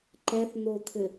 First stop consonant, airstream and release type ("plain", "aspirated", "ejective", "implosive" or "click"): click